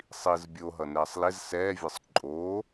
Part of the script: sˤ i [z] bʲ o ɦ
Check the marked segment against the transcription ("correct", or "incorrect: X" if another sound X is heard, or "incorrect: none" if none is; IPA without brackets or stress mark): correct